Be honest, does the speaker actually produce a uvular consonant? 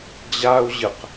yes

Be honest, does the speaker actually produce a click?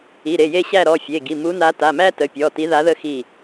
no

